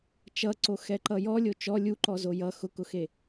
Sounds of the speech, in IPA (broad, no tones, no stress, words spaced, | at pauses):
t͡ʃʌǀoxɛǃʌ jɔlʲo t͡ʃɔ lʲuǃɔzo jʌ xʊkʊxe